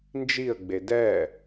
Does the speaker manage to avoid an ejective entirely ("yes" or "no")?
yes